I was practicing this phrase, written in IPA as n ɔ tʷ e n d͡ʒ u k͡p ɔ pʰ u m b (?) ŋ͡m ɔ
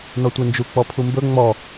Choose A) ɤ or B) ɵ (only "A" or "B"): B